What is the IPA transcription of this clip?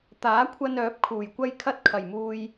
t̪aː˨˥kʷʰɐ˧n œː˨˥p̚kʰuː˨˩jkʷɐ˥j kʰɐ˥t̚kʰɐ˨˩jmuː˧j

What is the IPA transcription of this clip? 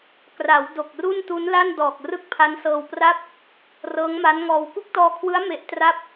kra˩˦w do˨˩k̚ru˥˩ntu˦˥n la˥˩ndɔː˨˩k̚ rɯ˥˩k̚pʰa˦˥nsɤː˧wpra˥˩p̚ | rɤː˦˥ŋma˦˥nŋɔː˧w ku˥˩k̚tɔː˧kʰwɯ˦˥a̯ me˦˥ʔtra˥˩p̚

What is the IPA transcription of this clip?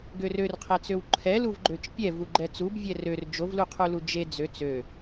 ɡørørqʰɛt͡søw ǃʰɛluvɡ͡ǃøt͡ʃ pʲɛvu ɡ͡ǃɛt͡sub vʲɛrør d͡ʒovluqʰulu d͡ʒe d͡zøt͡s ø

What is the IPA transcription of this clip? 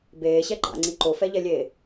beːɕɛ ɡ͡ǃa̰ŋ͡ǀi ǃofɛʎɛlʲeː

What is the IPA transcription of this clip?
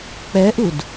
k͡pɛʔud

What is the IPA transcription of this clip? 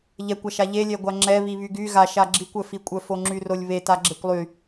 ʎɛkʷaʃa ʎelʲɛɡʷa ŋ͡ǁɛβi βyɡy ɣaʃa ɡ͡ǁikʷœfikʷʼœ foŋ͡ǁyrolʲβe taɡ͡ǁekʷlˠy

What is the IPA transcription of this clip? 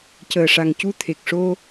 cəː˨˩ʂa˨˩ŋcu˧ t̪ʰe˨˩k̚ʂo˧

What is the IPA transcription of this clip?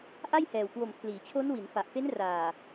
ʔa˥˩jhɛː˨˩wkwo˨˩m pʰliː˩˦t͡ɕʰo˦˥n wi˩˦nfa˨˩ʔfe˦˥n raː˨˩

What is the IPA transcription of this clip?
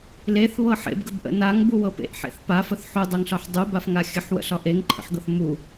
leθβɤ ħḛbɡəbʔə̰ naŋbuwɤ pḛʔħḛθ pafəθ ħudˤɤŋɬɒħ dˤubafŋa xʲəħwə̰ɬɒ ʔeŋǃʰə̰ħɡɤθ mu

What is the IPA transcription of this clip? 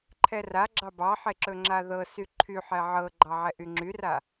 ǃʰɛraɡ͡ǁɑ bɑħeǁɵ ŋ͡ǁaðɤ syǃʰyħɛ ʕɤɡ͡ǃɑʕɛ ʔyŋ͡ǁyra

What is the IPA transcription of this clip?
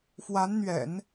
fwa˧˥nn̪ɥɛ̰˨˩˦n

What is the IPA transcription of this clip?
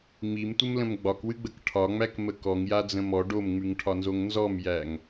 ŋ͡mimtʷəmlə̃m ɡ͡bɒkwɨɡ͡bək ʈʰɒŋ͡mækmə kɔŋjad͡zə̃ mɔ ɖomŋ͡mʉŋʈʰɒnzoŋ nzɔmjæŋ

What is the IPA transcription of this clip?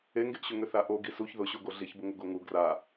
eŋɡeʔɕʏ ŋʏθaʔo ɡisuç ðʊɕoɡo ɮiçbʊŋʊ ɡoŋu ɡra

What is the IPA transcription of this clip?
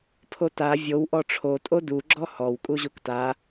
pʰota vʲow ʔɔʈ͡ʂʰo tʼodu ɡ͡ǁɔhɔw kʼuʑukta

